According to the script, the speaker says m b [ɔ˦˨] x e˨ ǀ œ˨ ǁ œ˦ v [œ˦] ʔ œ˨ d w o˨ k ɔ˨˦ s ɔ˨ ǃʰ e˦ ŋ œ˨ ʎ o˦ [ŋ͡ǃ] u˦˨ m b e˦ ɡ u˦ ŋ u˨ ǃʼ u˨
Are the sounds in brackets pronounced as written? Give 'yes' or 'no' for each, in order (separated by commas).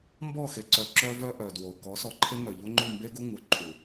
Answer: yes, yes, yes